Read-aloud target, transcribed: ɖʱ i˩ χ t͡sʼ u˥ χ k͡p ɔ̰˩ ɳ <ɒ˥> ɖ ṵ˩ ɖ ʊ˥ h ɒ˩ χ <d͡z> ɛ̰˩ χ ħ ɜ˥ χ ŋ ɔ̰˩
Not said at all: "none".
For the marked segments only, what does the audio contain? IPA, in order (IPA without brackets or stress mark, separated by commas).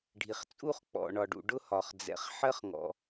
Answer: ɒ˩, d͡z